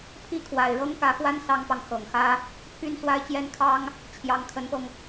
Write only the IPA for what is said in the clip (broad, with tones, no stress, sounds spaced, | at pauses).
pʰ i˥˩ kʰ w a˨˩ ɪ̯ ɻ ɤ˥ ŋ k ä˧˥ x w a˥ n s ɑ˥ ŋ p ɑ˨ ŋ x ɤ˨˩ ŋ x ä˥ | pʰ y˥ n s w a˥ ɪ̯ t͡ɕ j ɛ˥ n kʰ ɑ˥ ŋ | t͡ɕʰ j ɑ˧˥ ŋ kʰ ə˧˥ n p ɤ˧ ŋ